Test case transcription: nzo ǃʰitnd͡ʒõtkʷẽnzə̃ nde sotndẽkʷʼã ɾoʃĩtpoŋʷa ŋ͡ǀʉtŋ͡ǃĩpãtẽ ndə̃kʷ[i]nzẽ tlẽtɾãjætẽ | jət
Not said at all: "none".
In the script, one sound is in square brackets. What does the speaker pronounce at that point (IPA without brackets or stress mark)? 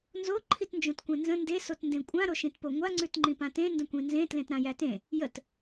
ĩ